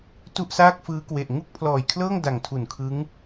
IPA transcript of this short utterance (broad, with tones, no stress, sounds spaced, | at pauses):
t u˥˩ ʔ s aː˥˩ k̚ f ɯː˦˥ k w e˨˩ ʔ ŋ u˥˩ k̚ pʰ l ɔː˨˩ j kʰ l ɤː˥˩ ŋ d a˨˩ ŋ tʰ u˨˩ n kʰ ɯ˦˥ ŋ